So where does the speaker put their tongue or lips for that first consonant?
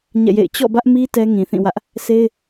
palate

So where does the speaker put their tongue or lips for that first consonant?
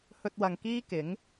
throat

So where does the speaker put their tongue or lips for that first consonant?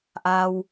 throat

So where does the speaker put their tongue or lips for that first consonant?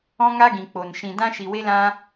velum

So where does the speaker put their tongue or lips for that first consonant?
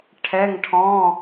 retroflex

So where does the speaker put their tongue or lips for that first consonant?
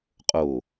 uvula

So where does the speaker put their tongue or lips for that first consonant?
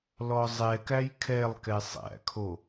tongue tip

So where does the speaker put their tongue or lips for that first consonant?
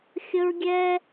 velum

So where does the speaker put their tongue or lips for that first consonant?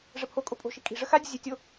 retroflex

